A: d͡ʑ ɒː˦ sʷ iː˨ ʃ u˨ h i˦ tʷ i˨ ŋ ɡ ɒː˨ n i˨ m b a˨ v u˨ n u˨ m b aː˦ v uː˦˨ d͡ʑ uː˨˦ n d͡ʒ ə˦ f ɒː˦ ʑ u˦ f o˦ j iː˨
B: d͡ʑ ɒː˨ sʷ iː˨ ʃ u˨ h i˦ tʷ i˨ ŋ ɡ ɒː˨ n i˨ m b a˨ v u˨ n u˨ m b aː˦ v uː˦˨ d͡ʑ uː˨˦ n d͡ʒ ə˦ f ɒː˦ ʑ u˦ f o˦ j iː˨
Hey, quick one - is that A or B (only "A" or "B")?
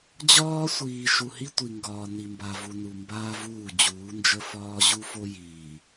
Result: A